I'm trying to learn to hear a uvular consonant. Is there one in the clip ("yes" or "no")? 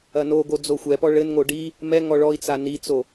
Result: no